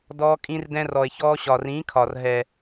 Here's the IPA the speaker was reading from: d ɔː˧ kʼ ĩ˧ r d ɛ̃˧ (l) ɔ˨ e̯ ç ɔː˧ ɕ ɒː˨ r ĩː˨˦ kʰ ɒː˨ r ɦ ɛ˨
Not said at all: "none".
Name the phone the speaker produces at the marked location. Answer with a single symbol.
r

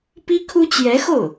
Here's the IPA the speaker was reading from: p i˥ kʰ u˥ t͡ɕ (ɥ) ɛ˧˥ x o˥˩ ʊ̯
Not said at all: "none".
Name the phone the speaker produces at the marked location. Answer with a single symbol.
j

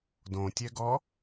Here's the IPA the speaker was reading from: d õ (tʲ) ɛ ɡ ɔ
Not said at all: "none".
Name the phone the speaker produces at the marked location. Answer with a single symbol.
tʲ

